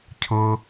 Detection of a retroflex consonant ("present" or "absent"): absent